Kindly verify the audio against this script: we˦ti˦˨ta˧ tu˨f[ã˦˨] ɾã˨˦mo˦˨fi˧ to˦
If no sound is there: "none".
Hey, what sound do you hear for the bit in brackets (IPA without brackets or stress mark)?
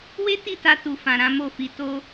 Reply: ã˨